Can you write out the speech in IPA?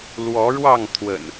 l w ɔ˨˦ ɻ w ɑ˥˨ ŋ t̪ʰ w ə̰˨˩ n

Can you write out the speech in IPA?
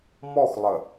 m ɔ x lˠ ə

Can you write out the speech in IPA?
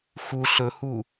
x u ɬ ɵ h u

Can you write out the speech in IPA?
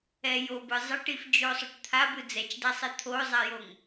ɛ j o b ɯ zˤ ʌ ʈ i f d͡ʒ o sˤ o ʈ t̪ʰ a b ɯ d͡z ɛ t͡ʃ d a sˤ ɛ t̪ʰ o zˤ a j o ŋ

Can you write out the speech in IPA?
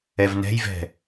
ɛ v n ɛ̤ j v ɛ̤

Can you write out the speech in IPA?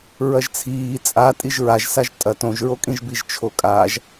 ɹ ɐ ʒ t͡sʰ iː t͡sʼ a tʼ i ʒ ɹ a ʒ s a ʒ tʼ ɐ t õ ʒ ɹ o kʼ ĩ ʒ b i ʒ t͡ʃʰ o kʼ aː ʒ

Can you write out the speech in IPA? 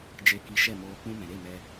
d͡ʒ e˧ k i˧ ʃ ɛ˦˨ m oː˧ k͡p ũ˧ m ɛ̃˨ ɾ e˦˨ m ɛ˧

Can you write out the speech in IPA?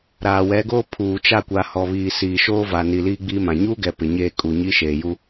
ɾ aː˨ w ɛ˨˦ ɡ oː˦ pʰ uː˨ t͡ʃ a˦˨ kʷ a˨ h ɔ˨ β iː˨ s iː˨ ʃ oː˦ v a˨ n i˨ l iː˦ ɡ͡b iː˦ m ã˨ ɲ uː˦ ɡ ɛ˨ p ɪ˨ ɲ eː˦˨ kʼ u˨ ɲ i˦ ʃ eː˨ j u˦

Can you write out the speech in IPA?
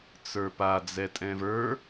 t͡s ə˞ p a d͡z ɛ tʼ ɛ̃ v ə˞

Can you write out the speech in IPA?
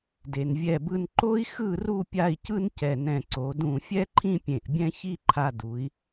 d e˧ n vʲ ɛ˥˧ b ɯ˥ n ǃ o˥ i̯ x ɯ˥˧ r u˥˧ pʲ a˥˧ i̯ c ɯ˥ n c ɛ˧˩ n ɛ̃˧˩ ǀ o˩˧ d ũ˧˩ fʲ ɛ˥ ǃʰ ĩ˥ pʲ ẽ˧˩ ʔ bʲ ɛ̃˥ ç i˥˧ ǃʰ a˧ d u˩˧ i̯

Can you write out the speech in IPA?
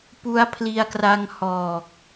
p u˦˥ a̯ pʰ l i˧ a̯ k r a˧ ŋ h ɔː˨˩ k̚

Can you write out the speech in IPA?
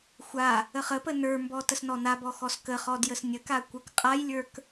xʷ a | ə χ ə p ə n ə˞ m b ɔ t ə s n ɔ n a b ɔ x ɔ s k ə χ ɔ d j ə s nʲ ə k a kʷ ə˞ k qʼ a j lʲ ə˞ k

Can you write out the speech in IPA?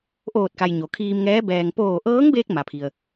ʔ oː˧˩ t̚ k a˩ j ɲ o˩ kʰ iː˧ m ŋ ɛː˧˥ b ɛː˩ ŋ p oː˧˩ ʔ ɤː˧˥ ŋ b eː˧ k̚ m a˩ pʰ i˩ ə̯

